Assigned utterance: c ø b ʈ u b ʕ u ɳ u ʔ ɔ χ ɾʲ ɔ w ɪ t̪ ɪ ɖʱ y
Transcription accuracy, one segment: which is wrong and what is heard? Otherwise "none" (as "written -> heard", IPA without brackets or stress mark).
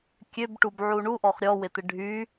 c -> kʲ